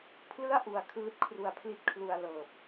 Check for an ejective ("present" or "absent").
absent